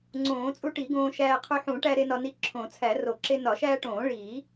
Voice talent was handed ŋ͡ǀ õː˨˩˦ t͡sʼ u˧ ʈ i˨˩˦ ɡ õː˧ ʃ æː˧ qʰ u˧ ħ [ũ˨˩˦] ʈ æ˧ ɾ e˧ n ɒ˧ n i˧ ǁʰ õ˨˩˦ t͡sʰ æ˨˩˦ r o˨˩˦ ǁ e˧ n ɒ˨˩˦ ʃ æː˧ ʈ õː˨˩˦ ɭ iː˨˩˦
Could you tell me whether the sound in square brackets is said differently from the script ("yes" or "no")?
no